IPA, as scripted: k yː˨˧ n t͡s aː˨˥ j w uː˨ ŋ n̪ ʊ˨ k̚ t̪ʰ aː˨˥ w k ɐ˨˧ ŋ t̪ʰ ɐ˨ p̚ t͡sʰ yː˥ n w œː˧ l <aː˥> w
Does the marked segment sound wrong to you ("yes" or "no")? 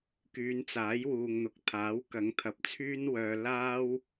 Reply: no